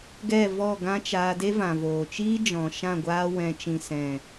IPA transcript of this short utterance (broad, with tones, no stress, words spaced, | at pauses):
ɡɛ˦˨vɔ˦˨ɡã˦ t͡ʃaː˧de˦vã˨voː˨ t͡ʃiː˦d͡ʒɔ̃˨ ʃã˦˨ɡʷaː˧ wɛ̃˨t͡ʃĩ˨ sɛ̃˨